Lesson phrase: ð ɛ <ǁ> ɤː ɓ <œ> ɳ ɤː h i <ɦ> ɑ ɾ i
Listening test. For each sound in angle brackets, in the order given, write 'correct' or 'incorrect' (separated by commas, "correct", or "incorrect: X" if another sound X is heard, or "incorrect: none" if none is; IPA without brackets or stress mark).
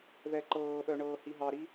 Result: incorrect: ǃ, correct, correct